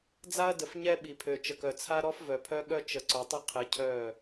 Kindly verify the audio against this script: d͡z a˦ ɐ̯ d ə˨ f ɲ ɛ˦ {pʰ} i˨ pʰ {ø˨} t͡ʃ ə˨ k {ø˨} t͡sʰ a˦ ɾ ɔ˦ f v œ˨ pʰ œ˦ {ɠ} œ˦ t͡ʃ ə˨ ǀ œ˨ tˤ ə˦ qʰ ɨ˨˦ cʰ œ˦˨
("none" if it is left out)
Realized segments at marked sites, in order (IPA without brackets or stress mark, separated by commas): ɓ, ø˨, œ˨, ɠ